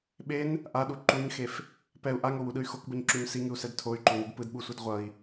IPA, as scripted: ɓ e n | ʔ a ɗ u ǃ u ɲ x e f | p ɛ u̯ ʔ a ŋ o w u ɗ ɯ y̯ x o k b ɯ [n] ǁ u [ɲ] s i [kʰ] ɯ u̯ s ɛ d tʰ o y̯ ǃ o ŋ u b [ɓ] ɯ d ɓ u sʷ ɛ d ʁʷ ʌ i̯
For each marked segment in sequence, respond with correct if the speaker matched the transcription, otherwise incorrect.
incorrect, correct, incorrect, incorrect

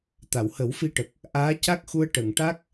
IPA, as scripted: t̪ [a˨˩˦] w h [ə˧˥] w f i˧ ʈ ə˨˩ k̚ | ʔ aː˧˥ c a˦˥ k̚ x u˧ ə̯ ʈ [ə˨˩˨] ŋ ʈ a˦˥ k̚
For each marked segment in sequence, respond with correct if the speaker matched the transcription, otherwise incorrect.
incorrect, incorrect, correct

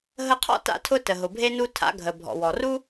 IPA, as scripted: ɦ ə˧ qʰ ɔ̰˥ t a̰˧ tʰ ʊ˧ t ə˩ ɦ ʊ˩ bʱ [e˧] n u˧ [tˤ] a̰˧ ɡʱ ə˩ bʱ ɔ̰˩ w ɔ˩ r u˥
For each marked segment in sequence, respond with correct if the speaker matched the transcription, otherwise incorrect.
correct, incorrect

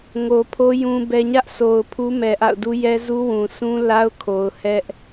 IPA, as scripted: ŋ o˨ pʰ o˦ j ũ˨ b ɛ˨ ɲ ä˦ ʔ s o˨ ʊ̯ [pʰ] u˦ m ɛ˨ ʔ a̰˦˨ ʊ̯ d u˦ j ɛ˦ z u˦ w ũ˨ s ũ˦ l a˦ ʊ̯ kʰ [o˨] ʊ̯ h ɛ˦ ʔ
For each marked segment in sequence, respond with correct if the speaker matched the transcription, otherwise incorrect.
correct, correct

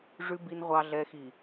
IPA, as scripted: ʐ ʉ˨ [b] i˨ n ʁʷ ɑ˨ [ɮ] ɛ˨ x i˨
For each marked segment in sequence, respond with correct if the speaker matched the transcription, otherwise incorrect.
correct, correct

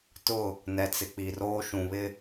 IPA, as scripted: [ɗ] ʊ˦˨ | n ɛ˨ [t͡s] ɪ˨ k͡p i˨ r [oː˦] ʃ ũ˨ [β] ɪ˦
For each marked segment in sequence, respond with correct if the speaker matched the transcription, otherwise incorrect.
incorrect, correct, correct, correct

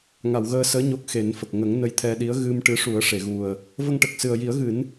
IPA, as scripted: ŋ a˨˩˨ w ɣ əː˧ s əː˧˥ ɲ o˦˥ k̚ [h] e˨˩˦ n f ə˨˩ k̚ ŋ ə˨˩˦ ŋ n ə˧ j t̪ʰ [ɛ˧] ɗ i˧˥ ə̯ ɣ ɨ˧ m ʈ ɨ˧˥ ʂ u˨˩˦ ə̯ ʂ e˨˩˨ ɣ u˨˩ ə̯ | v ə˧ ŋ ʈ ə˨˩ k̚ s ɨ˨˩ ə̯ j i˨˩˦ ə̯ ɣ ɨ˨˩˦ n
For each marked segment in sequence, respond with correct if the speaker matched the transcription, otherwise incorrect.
incorrect, correct

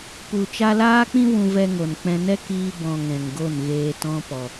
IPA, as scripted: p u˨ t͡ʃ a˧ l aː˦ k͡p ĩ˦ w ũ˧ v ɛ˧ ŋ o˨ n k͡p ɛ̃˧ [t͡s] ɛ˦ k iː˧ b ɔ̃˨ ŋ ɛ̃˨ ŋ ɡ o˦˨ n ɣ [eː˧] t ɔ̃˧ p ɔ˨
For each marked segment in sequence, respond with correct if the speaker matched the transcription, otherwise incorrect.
incorrect, correct

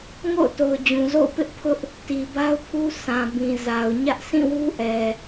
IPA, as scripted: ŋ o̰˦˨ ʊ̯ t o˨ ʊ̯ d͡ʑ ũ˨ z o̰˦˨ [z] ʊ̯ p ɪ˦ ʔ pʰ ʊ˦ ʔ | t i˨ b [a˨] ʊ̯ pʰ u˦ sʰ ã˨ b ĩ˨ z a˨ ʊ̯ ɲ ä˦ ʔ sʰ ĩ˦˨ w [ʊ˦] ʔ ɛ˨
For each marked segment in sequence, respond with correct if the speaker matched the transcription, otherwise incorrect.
incorrect, incorrect, incorrect

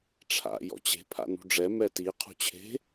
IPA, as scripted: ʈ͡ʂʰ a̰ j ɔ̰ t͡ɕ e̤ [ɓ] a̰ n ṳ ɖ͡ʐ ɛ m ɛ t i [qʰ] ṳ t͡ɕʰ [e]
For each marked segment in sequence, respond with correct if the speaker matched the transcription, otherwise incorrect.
incorrect, correct, incorrect

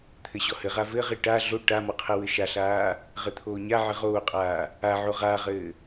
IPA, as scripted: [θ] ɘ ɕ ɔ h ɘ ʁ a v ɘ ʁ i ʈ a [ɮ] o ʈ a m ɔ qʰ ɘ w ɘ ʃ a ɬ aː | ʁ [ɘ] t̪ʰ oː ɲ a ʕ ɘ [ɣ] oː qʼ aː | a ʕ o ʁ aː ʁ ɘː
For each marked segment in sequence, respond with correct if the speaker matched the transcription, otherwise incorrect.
incorrect, correct, correct, incorrect

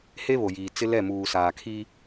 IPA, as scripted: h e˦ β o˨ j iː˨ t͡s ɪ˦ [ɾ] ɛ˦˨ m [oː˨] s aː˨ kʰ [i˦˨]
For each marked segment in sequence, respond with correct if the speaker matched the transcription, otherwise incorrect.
incorrect, incorrect, incorrect

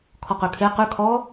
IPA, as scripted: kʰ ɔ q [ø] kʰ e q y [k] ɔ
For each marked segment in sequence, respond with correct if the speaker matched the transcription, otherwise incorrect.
correct, incorrect

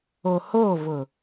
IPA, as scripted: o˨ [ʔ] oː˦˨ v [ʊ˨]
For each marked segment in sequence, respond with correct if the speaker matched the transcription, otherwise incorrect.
incorrect, correct

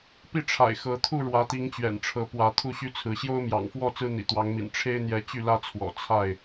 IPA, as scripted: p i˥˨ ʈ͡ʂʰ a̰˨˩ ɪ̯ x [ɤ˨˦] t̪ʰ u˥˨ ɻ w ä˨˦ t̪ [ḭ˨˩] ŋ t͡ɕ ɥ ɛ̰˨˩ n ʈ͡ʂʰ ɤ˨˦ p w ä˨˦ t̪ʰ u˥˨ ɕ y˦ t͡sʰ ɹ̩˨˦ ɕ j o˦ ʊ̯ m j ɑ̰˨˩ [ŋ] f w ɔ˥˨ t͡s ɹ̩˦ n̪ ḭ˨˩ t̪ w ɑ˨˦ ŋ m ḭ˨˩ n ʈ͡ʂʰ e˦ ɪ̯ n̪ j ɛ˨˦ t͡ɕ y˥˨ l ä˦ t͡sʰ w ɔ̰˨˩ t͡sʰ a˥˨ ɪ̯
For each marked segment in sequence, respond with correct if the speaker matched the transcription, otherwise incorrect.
correct, incorrect, correct

